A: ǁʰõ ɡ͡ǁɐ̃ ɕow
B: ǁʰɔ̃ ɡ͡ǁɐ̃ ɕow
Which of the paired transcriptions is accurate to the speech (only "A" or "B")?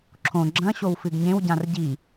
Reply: A